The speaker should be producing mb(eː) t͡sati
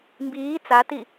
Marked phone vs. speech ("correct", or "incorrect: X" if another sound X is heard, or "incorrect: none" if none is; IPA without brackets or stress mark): incorrect: iː